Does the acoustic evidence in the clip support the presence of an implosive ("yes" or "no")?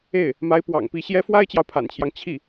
no